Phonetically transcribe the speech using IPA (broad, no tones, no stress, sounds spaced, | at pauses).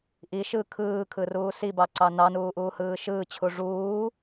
ʔ i ʃ ɯ kʰ ɯː kʰ ɯ r uː s i b ɑ ǀ ɑ n ɑ n uː ʔ uː h ɯː ʃ ɯː t͡ɕʰ u ʐ uː